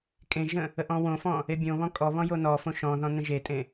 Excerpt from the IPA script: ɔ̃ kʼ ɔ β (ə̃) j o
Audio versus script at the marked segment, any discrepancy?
yes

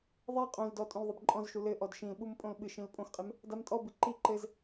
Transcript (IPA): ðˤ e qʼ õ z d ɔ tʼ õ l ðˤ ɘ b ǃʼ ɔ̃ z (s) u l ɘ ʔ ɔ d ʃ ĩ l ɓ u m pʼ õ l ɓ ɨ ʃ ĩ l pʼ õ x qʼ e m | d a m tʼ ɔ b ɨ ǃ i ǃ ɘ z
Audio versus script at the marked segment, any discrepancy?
yes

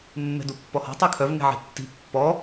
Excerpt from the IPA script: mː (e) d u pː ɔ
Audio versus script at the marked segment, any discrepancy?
yes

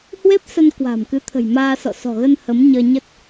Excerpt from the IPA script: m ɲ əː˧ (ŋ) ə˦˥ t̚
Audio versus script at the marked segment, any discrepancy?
yes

